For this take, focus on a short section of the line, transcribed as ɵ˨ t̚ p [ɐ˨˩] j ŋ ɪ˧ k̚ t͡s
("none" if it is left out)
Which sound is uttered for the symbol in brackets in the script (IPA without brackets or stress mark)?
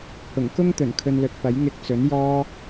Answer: ɐ˨˥